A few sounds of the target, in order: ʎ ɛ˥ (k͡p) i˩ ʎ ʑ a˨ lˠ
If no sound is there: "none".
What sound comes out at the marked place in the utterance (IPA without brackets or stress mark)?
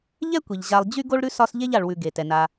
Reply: kʷ